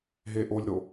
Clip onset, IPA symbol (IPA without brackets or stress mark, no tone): ɦ